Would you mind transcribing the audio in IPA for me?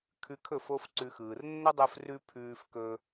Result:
kʰ ʉ˧ kʰ ɵ˦˨ f o˦ f ǀ ʉ˧ x ɯː˨ r nː ə˦ dˤ ɯ˧ f r ʉ˦ pʰ ʉː˧ f k ɵ˧

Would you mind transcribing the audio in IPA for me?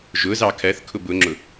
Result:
ʒ ʊ z ɑ kʰ ɜ θ kʰ ʊ b ʊ ŋ͡ǁ ʊ

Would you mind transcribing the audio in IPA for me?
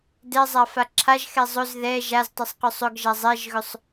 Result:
d ɛ zˤ a f a ǁʰ a ʒ x ɛ zˤ ɵ z ð ɛ ʒ a z tˤ ə sˤ q ɵ sˤ ɵ ɡ ʒ a zˤ ɛ ʒ ɣ ɵ sˤ

